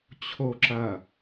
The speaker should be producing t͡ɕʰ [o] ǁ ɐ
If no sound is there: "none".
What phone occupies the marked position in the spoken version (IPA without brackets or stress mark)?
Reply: o